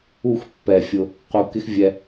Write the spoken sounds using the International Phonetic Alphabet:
u˦˨ x pː ɛ˨ fʲ ʊ˧ | q u˨ k ɪ˦ x vʲ ɛ˧

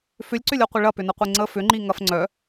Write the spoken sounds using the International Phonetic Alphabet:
f ʏ lʲ ǀ ʏ lʲ ɔ qʷ ɪ ɭ ɐ p ʏ n ɐ qʷ e ŋ͡ǀ ə f ʏ ŋ͡ǃ i ŋ ɐ f ŋ͡ǀ œ

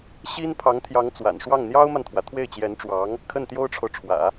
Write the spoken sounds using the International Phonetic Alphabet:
ɕ i˥ n pʰ ɑ˧˥ ŋ t̪ʰ j ɑ˧˥ ŋ t͡s w a̰˨˩ n ʂ w ɑ˥˩ ŋ n̪ j ɑ˥ ʊ̯ m a˨ n t̪ʰ w ä˩ t̪ʰ w e˥˩ ɪ̯ t͡ɕ j ɛ˧˥ n ʈ͡ʂ w ɑ˧˥ ŋ | kʰ ə˥˩ n t̪ j o˥ ʊ̯ ʈ͡ʂʰ o˨ ʊ̯ ʈ͡ʂʰ w ä̰˨˩˦

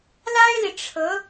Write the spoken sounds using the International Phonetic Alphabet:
l a˥ ɪ̯ l i˨ ʈ͡ʂʰ ɤ˧˥

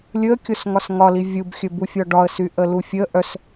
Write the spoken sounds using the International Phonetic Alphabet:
lʲ ɵ ə̯ kʲ o s ŋ ɒ s ŋ ɒ l i vʲ u b xʲ ɵ b u fʲ ɒ ɖ ɒ ə̯ s y ʔ ə l u fʲ ə ʔ œ s

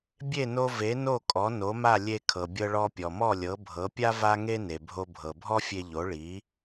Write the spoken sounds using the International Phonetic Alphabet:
bʲ e˥˩ n o˧ v e˩˥ n o˥˩ kʼ ɔ˩˥ n o˩˥ m a˥˩ lʲ e˧ kʰ ɤ˩ bʲ ɤ˧ ɭ ɔ˧ pʲ ɔ˩ m ɔ˥˩ lʲ ɤ˩˥ bʱ ɤ˩˥ pʲ a˥ v a˥ ŋ e˥ n e˩ bʱ o˧ bʱ ɤ˩ bʱ ɔ˥ fʲ e˧ ʎ o˩˥ ɭ i˩˥

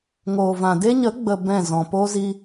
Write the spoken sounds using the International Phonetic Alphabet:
ŋ oː˨ v ã˨ d e˦ ɲ ə˨˦ ɡ͡b ə˨ b ɛ̃˦˨ z ɔ̃˨ p o˦ z i˦

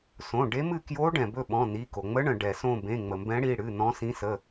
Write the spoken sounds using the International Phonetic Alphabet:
s õ˩˧˩ ɖ e˧˥ m ɨ˦˨ k j o˧˥ ɖ ɛ̃˩ b ɵ˦˨ ɓ ɔ̃˩˧˩ n i˩˧˩ k o˩ ŋ͡m ə˧˥ ɳ ə̃˩ ɖ ɛ˩ s õ˦˨ b ẽ˩˧˩ ŋ͡m ə˩ m b ɛ̃˧˥ ɽ i˩˧˩ ɽ ɨ˩˧˩ n ɔ̃˧˥ s ĩ˧˥ s ə˩˧˩

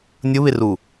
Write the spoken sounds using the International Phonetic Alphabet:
nʲ ʊ β ɪ r u

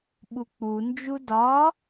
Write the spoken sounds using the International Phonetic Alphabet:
ɓ u k͡p u n d͡ʒ u d ɒ

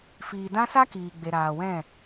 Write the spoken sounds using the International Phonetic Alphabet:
f iː˨ d ã˦ s a˦ k iː˨ ɡ͡b e˨ ɾ aː˨ w ɛ̃˦˨

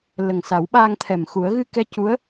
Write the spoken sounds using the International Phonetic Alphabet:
l ə˨˩ ŋ s a˨˩˦ w ɓ aː˧ ŋ t̪ʰ ɛ˨˩ m x u˨˩˦ ə̯ ɣ ɨ˧ k ɛ˧ c u˧˥ ə̯

